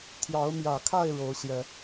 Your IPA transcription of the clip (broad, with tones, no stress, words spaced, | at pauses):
t̪ʰjɑ˨˦ʊ̯mjä˨˩kʰa˥˨ɪ̯ ɻo˨˦ʊ̯ɕjɛ˨˦